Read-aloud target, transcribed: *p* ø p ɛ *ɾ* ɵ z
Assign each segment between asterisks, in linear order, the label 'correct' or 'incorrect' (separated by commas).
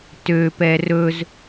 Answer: incorrect, incorrect